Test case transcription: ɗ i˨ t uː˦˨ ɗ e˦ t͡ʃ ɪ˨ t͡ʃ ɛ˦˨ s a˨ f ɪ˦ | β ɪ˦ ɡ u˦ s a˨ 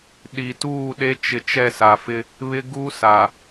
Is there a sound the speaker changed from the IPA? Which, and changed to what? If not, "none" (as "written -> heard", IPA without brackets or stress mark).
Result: none